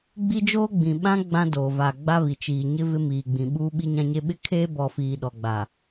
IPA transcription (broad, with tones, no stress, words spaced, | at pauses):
ɡ͡bi˦d͡ʒoː˦ɡ͡bĩ˨ ɓã˦ ɡ͡bã˦ doː˨va˨ɡ͡ba˦ βi˨t͡ʃiː˨ɲɪ˦ vɪ˦miː˨ɡ͡bĩ˨ ɓuː˦ɓi˦ɲã˦ɲe˦ ɓɪ˦kʰeː˦bɔ˨ fiː˨ɗɔ˨ɡ͡ba˨